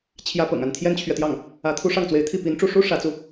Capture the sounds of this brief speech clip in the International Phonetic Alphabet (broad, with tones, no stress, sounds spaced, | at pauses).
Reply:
t͡ɕʰ j ä˥ p ɤ̰˨˩ ŋ a˥˩ n t̪ʰ j ɛ˥ n t͡ɕʰ ɥ ɛ˨ t̪ j ɑ˥˩ ŋ | ä˧˥ t̪ʰ u˥ ʂ ɑ˥˩ ŋ t͡s w e˧˥ ɪ̯ t̪ʰ i˥˩ p i˧˥ n ʈ͡ʂ u˥˩ ʂ u˥ ʂ ä˧˥ t͡s u˧